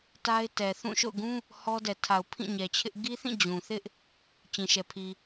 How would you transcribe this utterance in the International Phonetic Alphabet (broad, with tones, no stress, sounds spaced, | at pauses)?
t a˦ ɪ̯ t ɛ˨ θ ũ˦˨ ʃ o̰˦˨ ʊ̯ ɡ ũ˦ | h ɔ˦ d ɛ˨ tʰ a˨ ʊ̯ pʰ ĩ˦˨ ɲ ɛ˨ t͡ɕʰ ɪ˦ ʔ ɡ i˦ θ ĩ˦˨ d͡ʑ ũ˨ θ ɪ˦ ʔ | t͡ɕ ĩ˨ ʃ ɛ˨ pʰ i˨